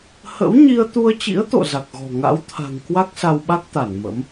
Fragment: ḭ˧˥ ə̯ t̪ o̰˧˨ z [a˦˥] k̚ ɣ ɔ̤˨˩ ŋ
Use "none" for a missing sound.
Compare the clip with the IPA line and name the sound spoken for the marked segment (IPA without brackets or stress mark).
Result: a˨˩